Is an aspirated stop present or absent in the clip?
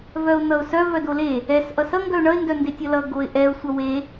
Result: absent